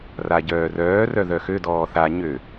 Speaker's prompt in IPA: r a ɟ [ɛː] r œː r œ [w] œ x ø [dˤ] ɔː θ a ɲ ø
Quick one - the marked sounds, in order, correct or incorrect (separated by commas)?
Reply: incorrect, incorrect, incorrect